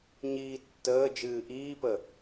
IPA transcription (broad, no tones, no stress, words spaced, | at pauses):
ɲiːtːəː d͡ʒɨːʔiːpə